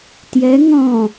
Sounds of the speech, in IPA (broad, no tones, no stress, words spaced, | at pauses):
tjɛ ŋɔ̃